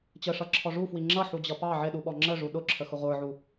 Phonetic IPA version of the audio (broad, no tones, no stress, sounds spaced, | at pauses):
t͡ɕ ə ʂ ʌ ǁʰ ɔ ʐ u f w i ŋ͡ǁ ʌ ħ u d͡ʑ ʌ p ɑ ʕ ɪ ɗ u ɓ ɔ ŋ͡ǁ ə ʐ u ɗ ʊ ǁʰ ə x ʊ ʁʷ ə˞ ʕ u